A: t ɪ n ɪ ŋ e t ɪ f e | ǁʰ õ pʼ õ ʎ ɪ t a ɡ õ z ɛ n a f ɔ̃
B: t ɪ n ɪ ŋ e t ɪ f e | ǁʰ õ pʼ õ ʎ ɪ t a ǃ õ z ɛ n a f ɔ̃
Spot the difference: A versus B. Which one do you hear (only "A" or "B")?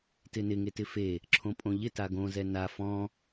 A